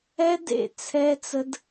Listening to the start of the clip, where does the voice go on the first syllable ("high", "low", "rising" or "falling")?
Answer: high